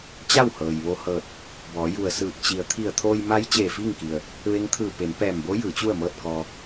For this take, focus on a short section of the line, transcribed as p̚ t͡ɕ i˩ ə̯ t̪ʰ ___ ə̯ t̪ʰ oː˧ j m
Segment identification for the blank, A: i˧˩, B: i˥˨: A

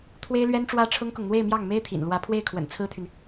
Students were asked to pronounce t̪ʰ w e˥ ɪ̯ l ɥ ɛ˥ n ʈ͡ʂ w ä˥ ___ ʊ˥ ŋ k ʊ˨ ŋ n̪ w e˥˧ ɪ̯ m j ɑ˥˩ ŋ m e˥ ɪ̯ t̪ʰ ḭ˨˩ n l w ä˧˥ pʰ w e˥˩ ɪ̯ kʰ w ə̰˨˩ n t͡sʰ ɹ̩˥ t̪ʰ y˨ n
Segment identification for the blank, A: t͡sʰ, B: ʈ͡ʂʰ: B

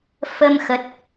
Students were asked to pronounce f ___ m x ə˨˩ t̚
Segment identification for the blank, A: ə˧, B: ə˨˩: A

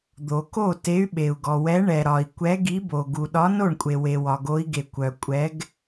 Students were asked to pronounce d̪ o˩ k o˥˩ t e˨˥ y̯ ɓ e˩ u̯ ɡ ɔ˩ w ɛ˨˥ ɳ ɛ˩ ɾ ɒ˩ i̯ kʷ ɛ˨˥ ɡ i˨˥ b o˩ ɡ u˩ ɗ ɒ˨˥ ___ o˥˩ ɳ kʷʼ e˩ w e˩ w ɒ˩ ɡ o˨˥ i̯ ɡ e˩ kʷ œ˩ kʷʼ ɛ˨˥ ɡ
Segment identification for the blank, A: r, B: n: B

